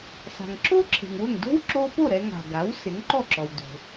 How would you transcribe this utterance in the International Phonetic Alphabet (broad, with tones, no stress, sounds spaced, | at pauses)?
s a̤˩ ŋ ǁ o˥ ǁʰ e̤˩ ŋ w ʊ˥˩ ŋ d o̤˥ w ǁ o˧ p o˥˩ ɾ ɛ˧ ŋ a̤˩ ɡ a˩˥ w s ɪ˩˥ ŋ ǃ ɔ˥˩ ǁ ɔ˩ w d o̤˩